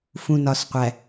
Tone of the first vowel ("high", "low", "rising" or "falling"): low